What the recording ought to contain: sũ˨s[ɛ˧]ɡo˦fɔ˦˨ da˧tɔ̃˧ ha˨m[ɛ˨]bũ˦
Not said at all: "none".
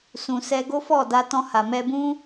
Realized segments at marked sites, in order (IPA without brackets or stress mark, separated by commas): ɛ˧, ɛ˧